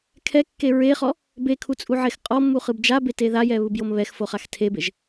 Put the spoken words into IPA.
kʰ ɛ kː e ɹ e χ ɔ | b e kʰ u t͡sʼ u ʕ e x qʼ ɔ mː u χ ɯ b d͡ʒ a b e t e ð a j ɛ β ɯ b j o m β ɛ x f o χ a x tʰ e b e ʒ

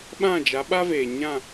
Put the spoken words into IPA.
ɓ ã˦˨ d͡ʒ a˨˦ ɓ a˦ v eː˨ ɲ ã˦˨

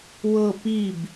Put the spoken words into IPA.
w ɤ p i b

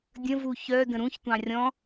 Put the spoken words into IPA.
dʲ ə̃ v u ç œ d ə̃ ɾ ũ ç tʷ ɑ̃ rʲ ɔ̃

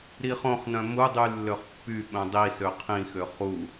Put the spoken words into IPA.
ɾ i χ õ χ n œ̃ m u dˤ y lː ø χ pː y ɓ œ̃ dˤ i s ø qʰ ĩ x ø χ u

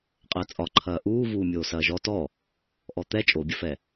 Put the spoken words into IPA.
qʼ əː t͡sʼ ɒ ǃʰ ɐː ʔ uː v uː mʲ oː s ɐː ʒ ɔ t ɔ | ʔ ɔ t̪ ɛ t͡ʃʼ o bʲ ɐ f ɛ

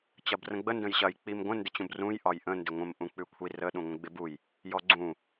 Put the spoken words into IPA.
t͡ɕ ɐ b r ə̃ ɡ͡b ə n d ə̃ j ɕ ɐ j k͡p i m ɡʷ ə̃ n d ɪ t͡ɕ ũ b r ũ j ʔ ɒ j ʔ ə̃ n d ɪ ŋʷ ə̃ m ʔ ũ k͡p ʉ kʷʰ i r ə ɗ ũ ŋʷ ə̃ ɡ͡b ɪ b u j | j ɔ ɡ͡ǀ ũ

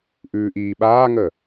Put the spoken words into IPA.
ʔ ʉː ʔ iː ɓ aː ŋ ə

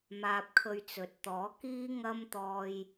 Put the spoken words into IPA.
m aː˧ p̚ kʰ ɵ˧ ɥ t͡s ɵ˨˥ t̚ t̪ ɔː˨˥ k iː˥ ŋ ɐ˥ m t̪ ɔː˧ j

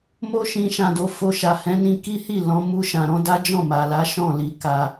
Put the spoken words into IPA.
m o˦ ʃ ĩ˧ ʃ ã˨ d o˨˦ f o˧ ʃ a˨ h ɛ̃˨˦ n ĩ˧ k i˦ h i˦˨ l ɔ̃˨˦ m u˧ ʃ ã˨ ɾ ɔ̃˨˦ d a˦ d͡ʒ ɔ̃˦˨ m a˨ l a˨˦ ʃ ɔ̃˦˨ l i˨ k a˧

